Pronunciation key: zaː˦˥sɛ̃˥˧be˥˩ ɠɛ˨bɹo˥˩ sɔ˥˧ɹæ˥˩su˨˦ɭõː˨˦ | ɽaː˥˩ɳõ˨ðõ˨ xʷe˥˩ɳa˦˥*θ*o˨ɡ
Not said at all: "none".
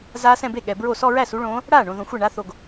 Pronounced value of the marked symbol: θ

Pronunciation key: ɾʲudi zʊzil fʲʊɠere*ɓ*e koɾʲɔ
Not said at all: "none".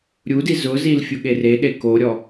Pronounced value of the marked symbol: ɗ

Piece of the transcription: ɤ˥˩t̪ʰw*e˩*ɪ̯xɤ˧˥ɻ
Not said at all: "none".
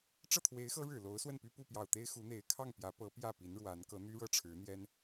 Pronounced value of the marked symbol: e˧˥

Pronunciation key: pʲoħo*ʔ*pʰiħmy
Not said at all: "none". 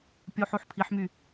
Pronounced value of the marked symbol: ħ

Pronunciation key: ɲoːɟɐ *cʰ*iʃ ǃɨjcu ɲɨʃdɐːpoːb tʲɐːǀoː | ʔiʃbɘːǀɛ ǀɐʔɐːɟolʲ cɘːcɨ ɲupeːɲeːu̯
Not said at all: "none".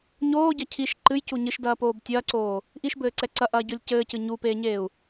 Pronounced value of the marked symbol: cʰ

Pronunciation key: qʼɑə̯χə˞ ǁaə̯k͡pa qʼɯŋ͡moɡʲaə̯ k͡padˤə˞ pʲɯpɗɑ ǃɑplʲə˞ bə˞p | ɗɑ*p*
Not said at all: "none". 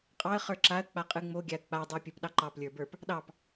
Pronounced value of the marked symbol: p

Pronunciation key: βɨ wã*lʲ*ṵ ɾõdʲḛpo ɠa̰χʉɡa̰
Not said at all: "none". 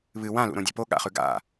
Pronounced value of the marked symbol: l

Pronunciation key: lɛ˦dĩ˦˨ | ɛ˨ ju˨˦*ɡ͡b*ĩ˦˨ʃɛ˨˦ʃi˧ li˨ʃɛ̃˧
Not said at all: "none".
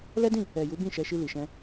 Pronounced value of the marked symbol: b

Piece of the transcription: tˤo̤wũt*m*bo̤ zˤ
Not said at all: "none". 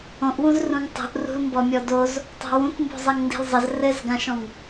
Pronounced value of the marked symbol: m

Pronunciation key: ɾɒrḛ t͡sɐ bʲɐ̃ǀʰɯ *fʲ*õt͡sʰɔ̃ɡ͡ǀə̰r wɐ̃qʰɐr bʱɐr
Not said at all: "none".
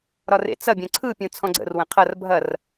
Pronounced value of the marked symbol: pʲ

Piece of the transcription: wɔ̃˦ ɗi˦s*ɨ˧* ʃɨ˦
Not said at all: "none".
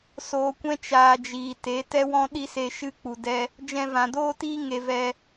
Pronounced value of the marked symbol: e˧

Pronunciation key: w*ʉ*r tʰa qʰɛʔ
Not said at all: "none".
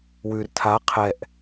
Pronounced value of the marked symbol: ʉ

